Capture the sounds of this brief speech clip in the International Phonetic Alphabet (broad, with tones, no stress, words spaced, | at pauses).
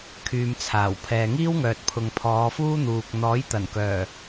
kʰyː˨mt͡sʰaː˨˩w pʰɛː˨ŋiː˥wŋœː˨t̚pʰʊ˨ŋ pʰɔː˨˧fuː˥n̪uː˨k̚ n̪ɔː˨˥jt̪ɐ˨˩nkœː˨˩